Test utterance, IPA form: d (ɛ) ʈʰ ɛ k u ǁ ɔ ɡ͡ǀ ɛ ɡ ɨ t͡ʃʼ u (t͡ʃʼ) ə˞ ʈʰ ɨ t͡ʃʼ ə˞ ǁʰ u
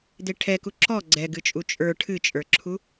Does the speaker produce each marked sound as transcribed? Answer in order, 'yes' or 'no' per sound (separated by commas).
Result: no, yes